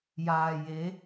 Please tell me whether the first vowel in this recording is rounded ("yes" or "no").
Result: no